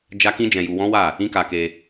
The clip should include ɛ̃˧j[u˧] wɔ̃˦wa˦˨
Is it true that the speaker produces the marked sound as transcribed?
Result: yes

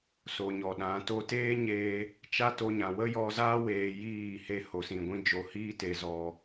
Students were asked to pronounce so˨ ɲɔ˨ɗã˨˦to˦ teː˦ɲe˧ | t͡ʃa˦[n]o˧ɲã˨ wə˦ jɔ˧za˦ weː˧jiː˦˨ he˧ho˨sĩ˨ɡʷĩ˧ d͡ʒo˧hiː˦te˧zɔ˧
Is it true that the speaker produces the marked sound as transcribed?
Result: no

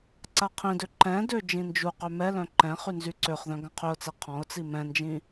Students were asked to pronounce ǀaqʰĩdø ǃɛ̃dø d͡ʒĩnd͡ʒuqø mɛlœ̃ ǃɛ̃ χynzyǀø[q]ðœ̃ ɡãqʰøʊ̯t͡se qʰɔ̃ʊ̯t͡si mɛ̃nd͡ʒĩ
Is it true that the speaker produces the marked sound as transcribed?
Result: no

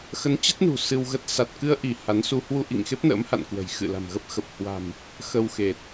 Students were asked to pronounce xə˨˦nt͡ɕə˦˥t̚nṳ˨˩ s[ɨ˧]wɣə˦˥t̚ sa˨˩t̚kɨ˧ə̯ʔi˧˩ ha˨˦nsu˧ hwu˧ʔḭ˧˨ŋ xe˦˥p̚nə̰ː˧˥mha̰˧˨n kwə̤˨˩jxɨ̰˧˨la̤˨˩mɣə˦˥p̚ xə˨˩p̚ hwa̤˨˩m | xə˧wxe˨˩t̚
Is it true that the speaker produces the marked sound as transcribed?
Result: yes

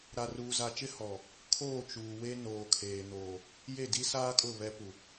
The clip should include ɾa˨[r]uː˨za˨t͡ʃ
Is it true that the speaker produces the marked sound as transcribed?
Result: yes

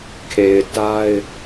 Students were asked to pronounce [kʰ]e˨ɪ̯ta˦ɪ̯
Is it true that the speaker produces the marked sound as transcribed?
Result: yes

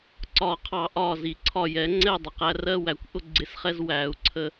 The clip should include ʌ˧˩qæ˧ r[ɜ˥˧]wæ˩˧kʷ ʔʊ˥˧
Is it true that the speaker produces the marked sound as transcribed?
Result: yes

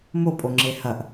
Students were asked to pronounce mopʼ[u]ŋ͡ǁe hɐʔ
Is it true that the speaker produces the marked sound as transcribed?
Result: no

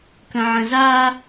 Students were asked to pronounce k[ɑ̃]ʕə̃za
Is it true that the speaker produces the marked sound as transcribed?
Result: no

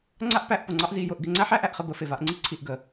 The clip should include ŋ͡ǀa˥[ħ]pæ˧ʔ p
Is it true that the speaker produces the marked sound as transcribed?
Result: no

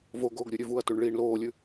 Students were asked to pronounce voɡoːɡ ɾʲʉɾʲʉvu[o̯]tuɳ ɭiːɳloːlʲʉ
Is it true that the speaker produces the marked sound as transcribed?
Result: no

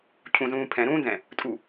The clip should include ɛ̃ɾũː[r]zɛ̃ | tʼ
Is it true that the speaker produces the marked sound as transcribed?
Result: no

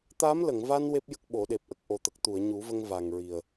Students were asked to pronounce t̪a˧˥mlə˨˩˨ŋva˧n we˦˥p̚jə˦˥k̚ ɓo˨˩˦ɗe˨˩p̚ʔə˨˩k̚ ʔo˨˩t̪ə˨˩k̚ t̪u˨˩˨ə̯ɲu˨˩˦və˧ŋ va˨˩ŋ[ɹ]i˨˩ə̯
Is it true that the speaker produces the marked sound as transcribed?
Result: yes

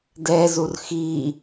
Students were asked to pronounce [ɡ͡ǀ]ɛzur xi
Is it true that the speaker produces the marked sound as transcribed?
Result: no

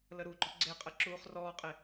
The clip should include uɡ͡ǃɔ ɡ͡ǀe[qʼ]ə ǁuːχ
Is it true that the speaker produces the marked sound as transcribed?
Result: yes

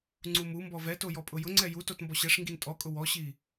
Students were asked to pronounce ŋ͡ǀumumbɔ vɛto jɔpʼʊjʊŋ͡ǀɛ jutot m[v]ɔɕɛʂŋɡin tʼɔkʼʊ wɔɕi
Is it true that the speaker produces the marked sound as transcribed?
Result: no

